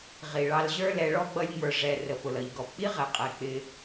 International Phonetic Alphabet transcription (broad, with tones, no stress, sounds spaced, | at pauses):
ʁ i˨ ɭ ɑ˧ l ʑ ə˞˦ l ɛ˧ ɭ ɔ˦ ɡ͡b ʌ˦ lʲ ŋ͡m ə˞˧ ʐ ɛ˧ r ə˨ p ʊ˨ l ʌ˨ ʎ ɡ ɔ˨ p k͡p i˦ ʁ ɛ˨ qʼ ɛ˨ k͡p ɪ˧